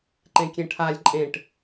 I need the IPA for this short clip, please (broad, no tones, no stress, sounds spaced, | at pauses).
ǃ ẽ kʲ ẽ ʈʰ a lʲ ǃʼ ẽ ʈ